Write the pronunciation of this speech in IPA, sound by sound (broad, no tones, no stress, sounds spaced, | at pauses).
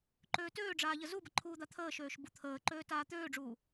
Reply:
ǃ øː t øː ɖ͡ʐ aː ʎ ə z u b ə ǃʰ uː d̪ a t̪ʰ əː ʃ øː ʃ b u t̪ʰ əː ǃ øː t aː t̪ øː ɖ͡ʐ uː